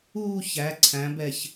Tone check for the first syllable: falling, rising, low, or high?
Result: falling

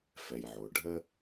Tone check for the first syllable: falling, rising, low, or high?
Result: low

